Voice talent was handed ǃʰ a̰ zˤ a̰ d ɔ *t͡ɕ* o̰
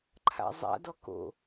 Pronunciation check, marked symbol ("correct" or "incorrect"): incorrect